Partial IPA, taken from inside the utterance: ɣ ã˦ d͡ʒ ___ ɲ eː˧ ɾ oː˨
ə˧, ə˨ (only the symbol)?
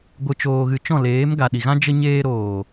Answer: ə˧